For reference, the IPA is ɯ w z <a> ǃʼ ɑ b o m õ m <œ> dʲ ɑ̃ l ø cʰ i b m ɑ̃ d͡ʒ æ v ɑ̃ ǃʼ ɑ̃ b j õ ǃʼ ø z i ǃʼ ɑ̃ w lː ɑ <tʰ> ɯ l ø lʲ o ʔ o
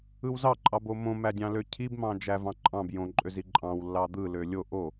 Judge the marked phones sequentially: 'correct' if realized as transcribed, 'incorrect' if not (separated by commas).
incorrect, incorrect, incorrect